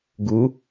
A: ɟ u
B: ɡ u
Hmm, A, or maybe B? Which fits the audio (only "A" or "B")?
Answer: B